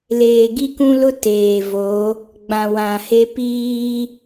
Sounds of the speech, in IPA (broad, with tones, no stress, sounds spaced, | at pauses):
l eː˨ ɡ i˦ k ũ˦ l ʊ˦ t eː˨ v o˨˦ | ɡ͡b ã˨ w ã˨ h e˦ p iː˦